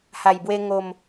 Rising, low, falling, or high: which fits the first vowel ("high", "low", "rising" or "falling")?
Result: low